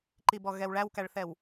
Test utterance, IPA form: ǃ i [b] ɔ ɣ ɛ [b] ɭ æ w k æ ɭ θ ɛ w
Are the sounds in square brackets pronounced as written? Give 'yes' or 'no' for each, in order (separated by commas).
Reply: yes, no